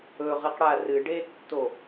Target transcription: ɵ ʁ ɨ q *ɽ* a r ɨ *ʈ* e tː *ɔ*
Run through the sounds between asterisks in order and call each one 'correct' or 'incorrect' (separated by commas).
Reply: correct, incorrect, incorrect